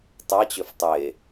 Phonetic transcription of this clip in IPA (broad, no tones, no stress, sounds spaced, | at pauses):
tˤ a t͡ɕ ø f tˤ e